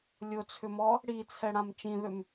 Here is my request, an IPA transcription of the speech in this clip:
lʲ ʊ t͡sʰ ʏ m ɔ | ɽ i t͡sʰ ɛ ɽ ã m t͡ʃ ĩ ð ʏ m

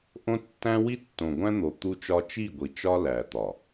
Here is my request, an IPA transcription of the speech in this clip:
ʔ õ˦ tː æ̃˦ w i˦ tː õ˨ ɡʷ æ̃˦ n̪ o˨ t̪ u˦ t͡ʃ ɒ˦ t͡ʃ i˦˨ ɡʷ i˨ t͡ʃ ɒ˦ l æ˨ t̪ ɒ˨

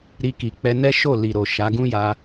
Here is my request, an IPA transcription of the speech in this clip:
ɾ i˧ k i˨ k͡p ɛ˧ n ɛ˦ ʃ o˦˨ l i˨ ɾ o˨ ʃ a˨˦ ɡ ũ˦ j a˧

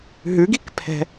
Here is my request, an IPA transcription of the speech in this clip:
ɦ ʉ ɡ i k pʰ ɛ̤

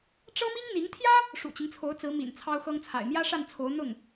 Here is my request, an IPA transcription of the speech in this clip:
ʈ͡ʂ ɤ˥ m i˥ ŋ n̪ i˧˥ ŋ t̪ʰ j ä˥ | ʂ ṵ˨˩ t͡ɕ i˦ ŋ t͡sʰ o˧˥ ʊ̯ t͡s ɹ̩˧˥ m ḭ˨˩ n t͡sʰ ɑ˥ ʊ̯ x ɤ˥ ŋ t͡sʰ a̰˨˩ ɪ̯ m j ä˥ ʂ a˥˩ n t͡sʰ o˧˥ ʊ̯ n̪ ʊ˥˩ ŋ

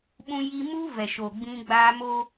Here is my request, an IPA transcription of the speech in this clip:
ɓ ũ˦ j i˦ m uː˦ v ɛ˨ ʃ o˨ ɡ͡b ĩ˦ ɡ͡b aː˦ m o˦

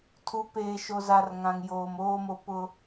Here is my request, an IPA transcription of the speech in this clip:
tʰ u˨˦ p eː˨ ʃ o˨ z a˨ r ŋ ã˨ ŋ j oː˨ m oː˦ m o˦ p ʊ˦

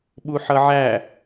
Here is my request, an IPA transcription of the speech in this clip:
ɓ u ħ ʌ ʕ æ

